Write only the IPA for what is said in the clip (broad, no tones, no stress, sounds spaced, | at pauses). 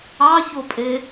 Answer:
ɑ ç o pʼ e